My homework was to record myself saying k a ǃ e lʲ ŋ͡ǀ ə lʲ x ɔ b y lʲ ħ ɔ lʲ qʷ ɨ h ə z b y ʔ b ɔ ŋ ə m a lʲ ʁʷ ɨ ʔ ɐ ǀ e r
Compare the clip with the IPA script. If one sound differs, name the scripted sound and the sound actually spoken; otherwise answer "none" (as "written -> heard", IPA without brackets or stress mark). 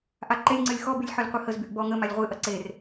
k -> ʔ